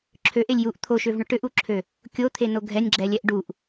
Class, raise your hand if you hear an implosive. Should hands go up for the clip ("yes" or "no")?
no